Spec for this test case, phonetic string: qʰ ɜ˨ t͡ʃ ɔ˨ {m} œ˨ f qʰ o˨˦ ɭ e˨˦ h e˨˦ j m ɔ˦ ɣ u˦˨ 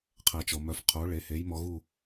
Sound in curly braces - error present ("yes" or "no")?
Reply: no